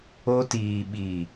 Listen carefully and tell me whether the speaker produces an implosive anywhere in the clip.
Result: yes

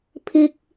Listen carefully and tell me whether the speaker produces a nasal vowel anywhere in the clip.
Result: no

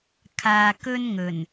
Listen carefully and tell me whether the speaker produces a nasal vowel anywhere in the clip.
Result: no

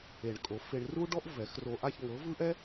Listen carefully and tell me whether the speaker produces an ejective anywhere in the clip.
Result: yes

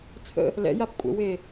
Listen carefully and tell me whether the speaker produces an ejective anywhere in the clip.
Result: yes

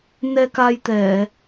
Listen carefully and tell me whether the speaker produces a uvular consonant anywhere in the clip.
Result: no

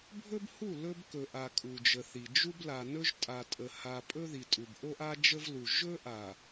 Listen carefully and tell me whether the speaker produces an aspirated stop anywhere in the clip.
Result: no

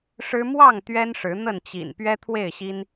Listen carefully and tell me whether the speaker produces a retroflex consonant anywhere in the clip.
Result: yes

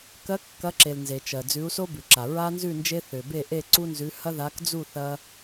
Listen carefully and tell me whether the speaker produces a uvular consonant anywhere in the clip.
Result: no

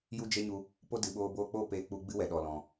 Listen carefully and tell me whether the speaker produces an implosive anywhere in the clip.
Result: yes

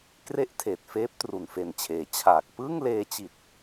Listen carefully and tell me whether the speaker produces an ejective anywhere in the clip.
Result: no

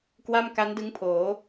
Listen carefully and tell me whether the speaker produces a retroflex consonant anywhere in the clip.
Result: no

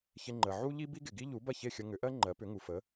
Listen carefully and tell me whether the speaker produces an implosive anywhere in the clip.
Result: no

